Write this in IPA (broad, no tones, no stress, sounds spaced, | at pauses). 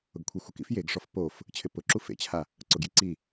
ʊ ɡ kʷʰ i xʷ ɪ k ḭ f j e ɡ ʂ ɔ f p o f | t͡ɕʰ ɪ p ʊ ǁ u f ḛ t͡ɕʰ a | ǀ ʊ ɡ j i ǀ i